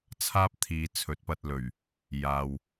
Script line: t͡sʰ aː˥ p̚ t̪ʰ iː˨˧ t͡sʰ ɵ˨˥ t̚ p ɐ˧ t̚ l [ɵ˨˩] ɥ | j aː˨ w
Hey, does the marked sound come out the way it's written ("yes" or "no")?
yes